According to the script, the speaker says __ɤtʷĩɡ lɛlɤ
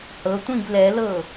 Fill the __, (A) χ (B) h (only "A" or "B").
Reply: B